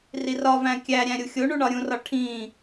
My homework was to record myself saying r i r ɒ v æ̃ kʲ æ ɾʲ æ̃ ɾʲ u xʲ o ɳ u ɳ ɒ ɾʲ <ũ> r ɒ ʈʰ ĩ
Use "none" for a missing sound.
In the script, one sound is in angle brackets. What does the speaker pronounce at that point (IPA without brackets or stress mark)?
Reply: ũ